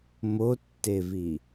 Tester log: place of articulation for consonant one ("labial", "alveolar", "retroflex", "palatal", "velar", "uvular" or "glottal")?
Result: labial